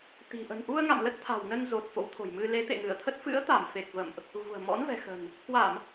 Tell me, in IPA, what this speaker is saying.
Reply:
t̪ i̤˨˩ ʔ ə̤˨˩ n ʔ u˧ ə̯ ŋ a̰˧˨ m l ə˦˥ t̚ t̪ʰ a̤˨˩ w n ə˧ n z o˨˩ t̚ f o̰˧˥ w t̪ʰ o̤˨˩ j m ɨ˧ l e˨˦ t̪ ḛ˧˨ ŋ ɨ˧˩ ə̯ t̪ʰ ə˦˥ t̚ f ɨ̰˧˥ ə̯ t̪ a˧˩ m f e˨˩ k̚ v ə̰˧˨ m ʔ | ɣ ṳ˨˩ ə̯ m ɔ̰˧˥ n v ɛ̤˨˩ x ə̤˨˩ n | k w a˧˩˨ m

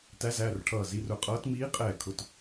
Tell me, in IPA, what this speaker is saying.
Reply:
t æ˧˥ z æː˩˧˩ r ʈʰ ʌː˧˩ z i˩˧˩ r ʊ˧˩ qʼ ʌː˧˥ t m iː˧˥ qʼ ɛː˧˩ kʰ ʊ˩˧˩ t

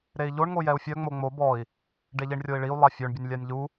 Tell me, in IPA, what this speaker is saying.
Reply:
ɾ e i̯ ʎ o ɳ ŋ o j ɛ u̯ fʲ œ ŋ͡m o ŋ͡m o b ɔ i̯ | ɖ e ʎ i ɳ rʲ o i̯ ɭ i u̯ lˠ a fʲ ø ɳ bʲ ə nʲ lʲ a nʲ ʎ u

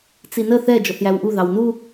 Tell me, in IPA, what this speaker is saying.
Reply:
t͡s i n ə θ ɛ d͡ʒ ɔ θ j æ w ʔ u ð ɑ w n u

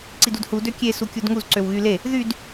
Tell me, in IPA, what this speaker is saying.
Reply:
ǀ i d u d h u d ø kʲ e s u kʲ u d ŋ u z ǀ ø w ɣ y l e | ð y d

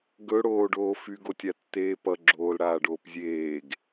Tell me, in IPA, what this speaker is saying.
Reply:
ɡ ɵ ɽ oː ɖ oː f y ɡ o tʲ a tː eː p ʌ ɡ͡ǁ oː l ɽ aː ɖ oː p zʲ eː ɡ

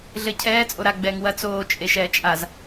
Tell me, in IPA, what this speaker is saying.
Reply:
ɮ ɘ cʰ ɛː t͡sʼ o ɾ a ɡ͡b ɛː ŋ w ɐ t͡s oː t͡ʃʼ e ʃ ɛː t͡ʃʼ a z

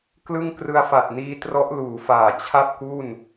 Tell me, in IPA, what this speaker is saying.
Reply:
k l ɯ˥˩ ŋ k r ɯ˧ a̯ f a˨˩ t̚ n iː˧ t r ɔ˦˥ ʔ l uː˩˦ f aː˨˩ t͡ɕʰ a˥˩ p̚ k u˥˩ n

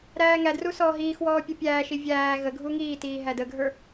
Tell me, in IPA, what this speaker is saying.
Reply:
ɾ æː ŋ æ d r u s ɔː ɦ iː x w ɔː pʲ u pʲ æː ʃ i vʲ æː ɣ ə ɡʱ u ŋ iː t iː ɦ æ d ə ɡʱ ə˞

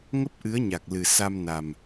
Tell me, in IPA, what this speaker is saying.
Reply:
ŋ ə˦˥ p̚ ʔ ɨ˨˦ ə̯ ɲ a˨˩ k̚ l ɨ˨˩ s a˧ m n a˨˩ m

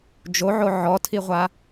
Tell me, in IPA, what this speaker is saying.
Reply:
d͡ʒ o ʕ o ʕ ɔ tʰ i ʁʷ a

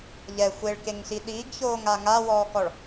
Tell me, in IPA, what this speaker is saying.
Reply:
ʎ ɛ xʷ e ɭ k e ŋ ɬ i ɗ iː ɡ ç oː ŋ a ŋ a w ɔː k ɔ ɭ

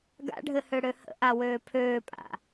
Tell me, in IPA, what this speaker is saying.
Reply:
ɡ a̰ ɖʱ ɘ h ø ɽ ø h ə̰ ʔ a w øː pʰ øː pʼ a̰

